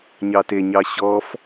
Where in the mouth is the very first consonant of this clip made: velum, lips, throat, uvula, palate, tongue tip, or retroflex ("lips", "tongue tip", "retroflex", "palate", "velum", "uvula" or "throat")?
palate